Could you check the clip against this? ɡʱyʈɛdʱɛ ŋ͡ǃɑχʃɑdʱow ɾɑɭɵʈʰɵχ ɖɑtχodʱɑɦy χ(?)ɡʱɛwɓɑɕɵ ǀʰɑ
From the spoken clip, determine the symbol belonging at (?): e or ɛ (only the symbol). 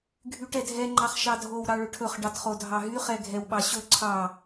ɛ